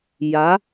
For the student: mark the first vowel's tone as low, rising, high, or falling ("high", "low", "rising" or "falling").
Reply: rising